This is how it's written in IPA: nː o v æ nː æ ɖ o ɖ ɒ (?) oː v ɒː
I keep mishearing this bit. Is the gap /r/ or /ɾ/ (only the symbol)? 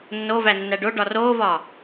r